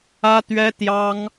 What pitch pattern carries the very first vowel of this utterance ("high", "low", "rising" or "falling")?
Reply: high